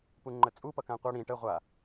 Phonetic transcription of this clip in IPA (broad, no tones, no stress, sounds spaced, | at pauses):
p u ŋ͡ǃ ə t͡sʼ u p ʌ k ã qʷ ʌ ɽ ĩ ʈ ə ʁʷ a